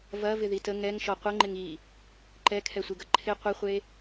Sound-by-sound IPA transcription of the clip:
v ɐ v ɪ ð i t ə ŋ ɛ ŋ ʃ ɔ qʷ ə ŋ͡ǃ ɪ ŋ i | ǃ ɛ kʰ ɛ sʷ i ɡ ɐ ǃʰ ɪ qʷ ɪ χʷ e

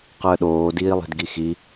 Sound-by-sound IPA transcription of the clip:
q əː ɗ oː d iː lˠ i̤ d ɡ i x i

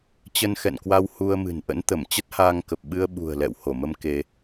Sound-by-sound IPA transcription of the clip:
t͡ɕ ə˧ n x ɛ̰˧˨ n k w a˧ w h u˧ ə̯ m ɨ̤˨˩ n ʔ ə̰˧˥ n t̪ ə˧˩ m t͡ɕ ə˦˥ t̚ h aː˧ ŋ k ə˨˩ p̚ ɓ ɨ˧ ə̯ ɓ ṳ˨˩ ə̯ l ɛ̰˧˨ w h o˧˩ m ə˧ m k e˧

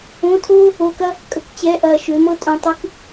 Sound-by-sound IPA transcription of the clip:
õ˧˥˧ tʰ oː˥ | o˧˥˧ k ɐ˥ | kʼ ə˧ k t͡ɕ ɛ˧˥˧ ʔ ɐː˨˩ ʃ ø˩˧ m ɤ˧ tʼ õ˨˩ tˤ ɨ˧˥˧ k

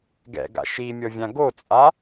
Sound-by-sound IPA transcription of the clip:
ɡ ɛ̰ ɡ a̰ ʃ i mʲ ɤ vʲ ã ɡ o t͡sʼ a

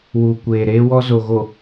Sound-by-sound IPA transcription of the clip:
w uː˨ kʷ eː˨ ɾ eː˦ w ɔ˦ z o˨ ɣ o˨

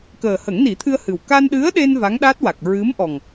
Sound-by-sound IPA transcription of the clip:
k əː˨˩ h ə˨˩˦ ŋ n i˨˩˦ t̪ʰ ɨ˧ ə̯ h ɨ˨˩ w k a˧ n ɗ ɨ˧˥ ə̯ ɗ e˧ n v a˧˥ ŋ ɗ a˦˥ t̚ w a˨˩ k̚ ɹ ɨ˧˥ m ʔ ɔ˨˩ ŋ

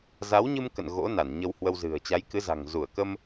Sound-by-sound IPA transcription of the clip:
z a˨˦ w ɲ ɨ˧ m k ə̰˧˨ n ɣ o̰˧˥ n a˧˩ n ɲ ə˧ w h w ə˧ w z ɨ̤˨˩ ə̯ t͡ɕ a˨˦ j k ɨ˨˦ z a̤˨˩ ŋ z u˧˩ ə̯ k ə˧ m

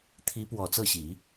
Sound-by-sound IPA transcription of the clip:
t̪ʰ i˧˥ p w ɔ˨˩ t͡s ɤ˥˩ ɕ i˨˩˦

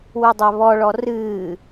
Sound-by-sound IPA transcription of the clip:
w u dˤ ɛ β ɔ ɭ ɔ r ɨː

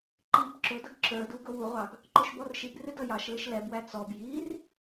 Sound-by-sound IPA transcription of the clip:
ǃ i b ǁ ʊ d ʌ ɡ ǁ ə˞ d u ɡ ʊ w u ʁʷ ɑ ɡ | ǃ ʊ ʃ b ɔ r ʃ i b r ɪ d ʌ j ɑ ʃ l ɪ ʃ l ɛ b w æ t͡s ɔ b j i r

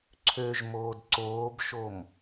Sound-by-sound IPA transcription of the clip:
ǀʰ ø ʒ m oː d ǀ oː b ʃ o m

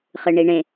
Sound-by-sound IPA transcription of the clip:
χ ɨ ɳ i ɳ ẽ

